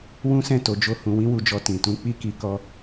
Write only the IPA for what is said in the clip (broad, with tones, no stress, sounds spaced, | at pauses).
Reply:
w ũ˦ s ɛ̃˦˨ t o˨˦ d͡ʒ o˦ h ũ˧ w ĩ˦ w u˧ d͡ʒ ɔ˧ t ĩ˨ t ũ˧ k͡p i˦ k i˧ k ɔ˦